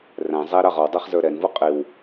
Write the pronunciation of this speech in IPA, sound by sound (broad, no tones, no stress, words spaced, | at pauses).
ræ̃zˤæ ɾɑʁɔwdˤæχ zə˞ɾɛnvu qʼiw